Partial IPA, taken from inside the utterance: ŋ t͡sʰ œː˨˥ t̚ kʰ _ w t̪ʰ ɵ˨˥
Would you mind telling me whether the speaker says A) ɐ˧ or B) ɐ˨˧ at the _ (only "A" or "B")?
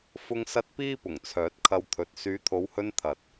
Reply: A